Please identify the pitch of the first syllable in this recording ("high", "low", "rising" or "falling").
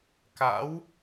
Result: rising